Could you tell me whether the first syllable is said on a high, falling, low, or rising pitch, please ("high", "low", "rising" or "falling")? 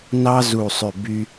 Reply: high